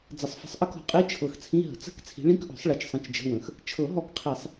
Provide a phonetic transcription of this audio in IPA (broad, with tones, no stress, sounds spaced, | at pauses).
d͡z ə˨˩˦ sˤ f ə̤˨˦ sˤ ʔ ə˧˥˧ k ɔ̤˨˩˦ qʼ i˧˥˧ t͡ʃʰ ɤ˨˦ x t͡sʰ ĩ˧˥˧ ɦ ə̤˨˩˦ t͡s ə̤˧˥˧ k t͡sʰ i̤˨˦ ɭ ĩ˧˥˧ k ʔ ɔ̤˨˩˦ sˤ ɭ i˨˦ t͡ʃ sˤ ə̃˧˥˧ t͡ʃ d͡ʒ ə̤˧˥˧ w ə̃˨˦ x | t͡ʃʰ ɤ˨˩˦ ɦ ɔ˨˦ k qʰ i˨˩˦ sˤ